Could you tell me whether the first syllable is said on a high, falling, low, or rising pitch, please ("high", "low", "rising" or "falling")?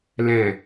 low